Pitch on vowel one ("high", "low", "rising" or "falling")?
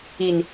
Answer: low